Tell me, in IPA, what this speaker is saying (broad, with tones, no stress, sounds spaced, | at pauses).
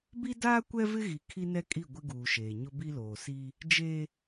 b i˦ d aː˦ kʷ ɛ˦ v ɪ˦ ɣ i˨ kʰ i˦ n ɛ˦ kʼ i˦˨ ɡʷ ɪ˦ ɡ uː˨ ʃ eː˨ ɲ ʊ˦ b i˦ l oː˨ s i˦ | d͡ʒ e˦